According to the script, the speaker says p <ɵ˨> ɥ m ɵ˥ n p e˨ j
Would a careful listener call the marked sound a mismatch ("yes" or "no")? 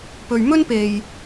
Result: no